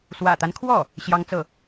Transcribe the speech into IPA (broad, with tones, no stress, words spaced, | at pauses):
swä̰˨˩t̪a˦nkʰwɔ˥˩ | ɕjɑ˥ŋt͡sɤ˥˩